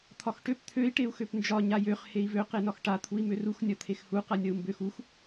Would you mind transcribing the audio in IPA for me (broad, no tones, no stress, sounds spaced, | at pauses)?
t̪ʰ ɒ x ʈ ø p t̪ʰ ø i̯ ʈ e u̯ x ø p n d͡ʒ ɒ ɲ a j ø χ h e i̯ v ø q e n ɒ x ʈ a t̪ʰ u i̯ m ø r u x nʲ ɒ t̪ʰ e x h u q a nʲ ɒ u̯ m b ø x u x